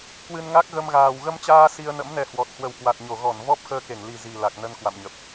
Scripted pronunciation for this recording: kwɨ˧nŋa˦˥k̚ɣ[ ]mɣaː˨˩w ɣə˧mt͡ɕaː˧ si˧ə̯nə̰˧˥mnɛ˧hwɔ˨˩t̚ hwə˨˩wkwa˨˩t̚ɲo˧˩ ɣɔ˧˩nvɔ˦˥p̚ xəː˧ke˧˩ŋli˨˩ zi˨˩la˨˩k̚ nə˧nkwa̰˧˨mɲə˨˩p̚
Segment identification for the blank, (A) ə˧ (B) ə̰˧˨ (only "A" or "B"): A